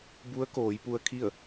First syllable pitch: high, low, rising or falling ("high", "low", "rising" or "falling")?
rising